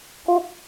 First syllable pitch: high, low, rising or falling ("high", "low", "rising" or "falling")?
falling